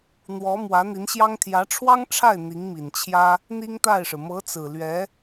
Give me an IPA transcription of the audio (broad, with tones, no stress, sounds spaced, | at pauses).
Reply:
n̪ w ɔ˧˥ m w ä˧˥ n̪ i˧˥ n ɕ j ɑ˥ ŋ t̪ʰ j ä˧˥ ʈ͡ʂʰ w ɑ˥ ŋ ʈ͡ʂʰ a˥˩ ɪ̯ n̪ i˧˥ ŋ m i˨˩ n t͡ɕʰ j ä˥ | n̪ i˥ ŋ t̪ a˥˩ ɪ̯ ʂ ɻ̩˩ m ɤ˧˥ t͡s ɹ̩˨˩ l ɥ ɛ˧˥